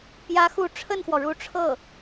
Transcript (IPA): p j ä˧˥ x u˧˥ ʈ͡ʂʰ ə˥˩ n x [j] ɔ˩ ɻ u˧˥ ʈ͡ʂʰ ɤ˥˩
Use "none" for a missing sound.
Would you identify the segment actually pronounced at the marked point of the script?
w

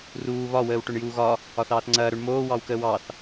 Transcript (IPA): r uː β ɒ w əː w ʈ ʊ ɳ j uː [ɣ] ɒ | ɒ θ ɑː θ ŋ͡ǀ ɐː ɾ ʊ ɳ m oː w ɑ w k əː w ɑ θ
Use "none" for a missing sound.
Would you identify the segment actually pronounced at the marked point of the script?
ɣ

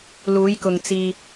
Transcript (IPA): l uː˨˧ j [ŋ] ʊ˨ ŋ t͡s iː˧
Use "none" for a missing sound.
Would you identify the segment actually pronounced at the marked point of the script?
k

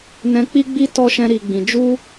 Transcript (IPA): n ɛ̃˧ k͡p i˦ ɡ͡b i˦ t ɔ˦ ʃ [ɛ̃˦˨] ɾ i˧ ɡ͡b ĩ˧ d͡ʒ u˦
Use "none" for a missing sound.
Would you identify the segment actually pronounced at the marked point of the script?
ɛ̃˦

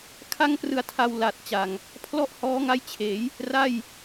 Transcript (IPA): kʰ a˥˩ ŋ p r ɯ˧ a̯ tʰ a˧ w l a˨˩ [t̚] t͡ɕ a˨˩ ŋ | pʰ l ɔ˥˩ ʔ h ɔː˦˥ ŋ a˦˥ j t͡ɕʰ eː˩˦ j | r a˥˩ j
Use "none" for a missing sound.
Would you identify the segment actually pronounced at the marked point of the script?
t̚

